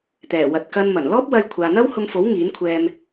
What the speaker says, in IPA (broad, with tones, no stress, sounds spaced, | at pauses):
t̪ ɛː˨˩ w ɐ˨ t̚ k ɐ˧ n m ɐ˨˩ n l ɔː˥ p̚ w ɐ˧ j kʷʰ aː˨ n̪ ɐ˥ w h ʊ˧ ŋ f o˨˥ w ŋ iː˨˥ n kʷʰ ɛː˧ m